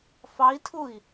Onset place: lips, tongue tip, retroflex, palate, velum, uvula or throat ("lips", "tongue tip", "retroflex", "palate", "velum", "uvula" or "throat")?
lips